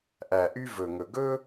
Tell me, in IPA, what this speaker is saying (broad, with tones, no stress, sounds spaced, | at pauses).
ʔ æ˨˩ ʔ y˦ v ɵ˨˩ ŋ ɵ˨˩ ɡ ɵ˦